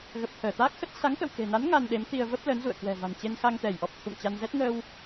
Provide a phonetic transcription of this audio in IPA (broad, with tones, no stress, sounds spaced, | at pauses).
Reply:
ɣ ə˨˩ p̚ t̪ʰ əː˧˩ t̪ aː˦˥ k̚ x ə˦˥ t̚ s a˨˦ ŋ k ə̰˧˨ w k e̤˨˩ n a˨˦ n ŋ a˧ n ɗ e˨˦ m t̪ i˧ ə̯ v ə˦˥ p̚ l ə˨˦ n z ṵ˧˨ ə̯ k w ɛ̤˨˩ v a̤˨˩ n t͡ɕ e˧ n x a˧ ŋ t̪ ɛ˧˩ j ʔ ɔ˨˩ p̚ t̪ʰ ṵ˧˨ ŋ t͡ɕ a˧ n z ɛ˦˥ t̚ ŋ əː˧ w